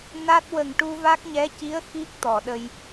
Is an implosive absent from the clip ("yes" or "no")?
no